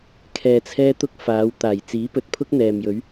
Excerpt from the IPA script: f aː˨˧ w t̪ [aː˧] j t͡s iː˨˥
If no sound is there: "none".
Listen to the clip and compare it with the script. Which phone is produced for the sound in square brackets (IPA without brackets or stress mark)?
aː˨˩